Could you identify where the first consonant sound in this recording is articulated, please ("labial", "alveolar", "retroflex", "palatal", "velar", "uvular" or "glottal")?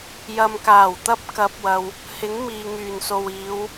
palatal